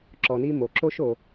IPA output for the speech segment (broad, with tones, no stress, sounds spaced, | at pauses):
ǁ ɔ˩ n i˥ m o˩ ǁ o˥ ʃ o˩